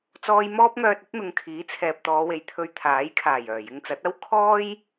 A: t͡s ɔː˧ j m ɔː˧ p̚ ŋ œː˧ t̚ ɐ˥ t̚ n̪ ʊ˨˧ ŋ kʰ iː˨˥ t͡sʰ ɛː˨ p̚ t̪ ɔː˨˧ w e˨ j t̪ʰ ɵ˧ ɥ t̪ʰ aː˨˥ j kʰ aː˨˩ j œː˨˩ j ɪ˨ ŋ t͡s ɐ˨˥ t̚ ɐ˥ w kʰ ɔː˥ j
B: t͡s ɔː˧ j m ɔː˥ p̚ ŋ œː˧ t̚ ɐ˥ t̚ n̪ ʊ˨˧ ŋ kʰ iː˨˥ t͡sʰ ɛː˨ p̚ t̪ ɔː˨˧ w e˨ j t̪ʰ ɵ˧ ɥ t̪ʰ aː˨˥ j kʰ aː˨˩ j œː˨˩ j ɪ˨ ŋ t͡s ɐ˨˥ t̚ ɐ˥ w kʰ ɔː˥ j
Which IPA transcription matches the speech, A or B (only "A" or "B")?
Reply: B